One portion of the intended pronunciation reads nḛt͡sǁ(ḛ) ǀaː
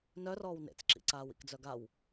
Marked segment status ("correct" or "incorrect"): incorrect